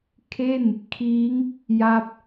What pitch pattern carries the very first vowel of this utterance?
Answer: falling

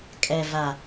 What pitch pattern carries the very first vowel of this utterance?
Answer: low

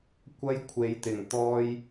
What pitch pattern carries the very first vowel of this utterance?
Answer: high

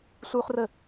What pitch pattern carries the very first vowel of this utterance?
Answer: high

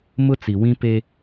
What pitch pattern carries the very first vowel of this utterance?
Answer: high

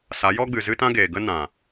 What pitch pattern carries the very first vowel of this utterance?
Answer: rising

